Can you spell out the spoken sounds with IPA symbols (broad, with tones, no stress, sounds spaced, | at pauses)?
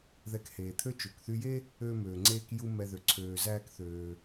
ð ɛ˧ k h eː˩ t̪ʰ ø˥ t͡ʃ ø˩ k θ y˧ j e˥ | øː˥ m øː˩ ŋ͡ǀ eː˥ k j u˥ m ɛ˧ ð ø˩ ǀʰ øː˩ z æː˥ k θ øː˩